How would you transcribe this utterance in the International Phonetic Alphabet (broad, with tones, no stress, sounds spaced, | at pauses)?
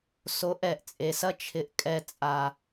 s o˨˦ ʔ ɛ˨ ʔ t͡sʼ e˨ s ɐ˦ t͡ʃʰ ɪ˧ ʔ kʼ ɛ˧ t͡sʼ a˨